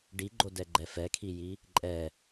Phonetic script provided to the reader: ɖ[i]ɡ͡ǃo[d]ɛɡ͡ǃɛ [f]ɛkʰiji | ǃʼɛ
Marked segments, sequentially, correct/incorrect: correct, correct, correct

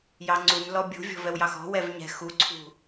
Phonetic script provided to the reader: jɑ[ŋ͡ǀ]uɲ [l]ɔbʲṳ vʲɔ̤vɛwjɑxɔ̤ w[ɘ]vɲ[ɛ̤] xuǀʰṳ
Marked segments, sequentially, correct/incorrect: correct, correct, incorrect, correct

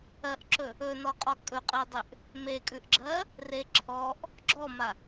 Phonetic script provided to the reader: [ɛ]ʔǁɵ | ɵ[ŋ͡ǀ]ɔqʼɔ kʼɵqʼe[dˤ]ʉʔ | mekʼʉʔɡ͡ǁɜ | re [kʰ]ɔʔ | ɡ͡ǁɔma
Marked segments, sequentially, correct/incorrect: incorrect, incorrect, correct, incorrect

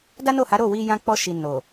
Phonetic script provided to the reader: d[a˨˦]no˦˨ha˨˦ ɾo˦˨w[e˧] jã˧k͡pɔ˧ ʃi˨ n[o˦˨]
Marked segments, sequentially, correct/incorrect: incorrect, incorrect, incorrect

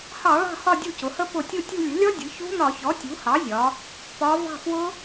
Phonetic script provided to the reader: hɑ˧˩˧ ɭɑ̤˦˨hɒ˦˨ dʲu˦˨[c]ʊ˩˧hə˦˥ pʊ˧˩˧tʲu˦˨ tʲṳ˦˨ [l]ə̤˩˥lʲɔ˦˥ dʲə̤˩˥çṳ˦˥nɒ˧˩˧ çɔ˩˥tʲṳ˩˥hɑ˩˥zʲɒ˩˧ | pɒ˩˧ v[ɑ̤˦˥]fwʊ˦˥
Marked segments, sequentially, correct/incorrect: correct, incorrect, incorrect

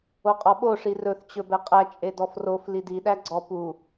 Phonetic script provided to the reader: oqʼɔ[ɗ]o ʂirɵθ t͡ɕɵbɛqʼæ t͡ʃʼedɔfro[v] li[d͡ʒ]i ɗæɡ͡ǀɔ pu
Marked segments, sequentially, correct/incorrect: incorrect, incorrect, incorrect

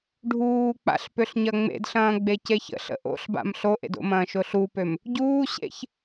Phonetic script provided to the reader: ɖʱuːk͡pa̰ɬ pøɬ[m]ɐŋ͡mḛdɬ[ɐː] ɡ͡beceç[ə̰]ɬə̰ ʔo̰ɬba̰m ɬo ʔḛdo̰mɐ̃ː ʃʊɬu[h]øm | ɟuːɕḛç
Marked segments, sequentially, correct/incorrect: incorrect, incorrect, correct, incorrect

